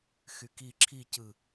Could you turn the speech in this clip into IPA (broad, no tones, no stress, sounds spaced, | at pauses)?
x y k i ǁʰ i c ɯ